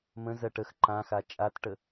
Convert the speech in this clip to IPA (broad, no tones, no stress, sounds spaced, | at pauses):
m ə̃ z ɜ ʈ ə x ǃ ã x a t͡ʃʼ a t ʈ ə